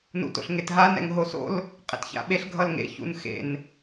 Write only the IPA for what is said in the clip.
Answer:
n ṵ t o̰ ɬ ŋ e t ɦ a n ɛ̰ ŋ ɦ o s o̰ l | qʼ ḛ t ç a̰ ɓ e ɬ ɡʱ ʌ l ŋ ḛ ç ṵ n x ḛ n

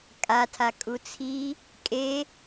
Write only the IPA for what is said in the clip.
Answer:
kʼ a tʰ a kʼ u t͡sʰ i | kʼ e

